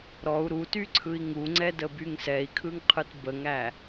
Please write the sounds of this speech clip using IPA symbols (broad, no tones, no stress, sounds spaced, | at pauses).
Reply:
ɾ ɔ u̯ ɾ u t y ǀʰ ɯ i̯ ŋ u ŋ͡ǀ ɛ d ə b y ŋ s ɛ i̯ kʰ ɯ ŋ qʰ ɯ t b ə ŋ æ